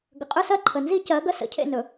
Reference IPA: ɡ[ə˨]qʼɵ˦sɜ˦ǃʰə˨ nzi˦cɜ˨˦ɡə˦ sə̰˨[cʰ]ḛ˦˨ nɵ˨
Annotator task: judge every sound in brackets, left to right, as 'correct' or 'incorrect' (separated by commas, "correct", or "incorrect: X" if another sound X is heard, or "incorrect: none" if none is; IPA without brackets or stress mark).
correct, correct